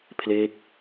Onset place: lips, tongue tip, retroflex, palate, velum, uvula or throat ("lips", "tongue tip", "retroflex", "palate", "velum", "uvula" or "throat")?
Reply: lips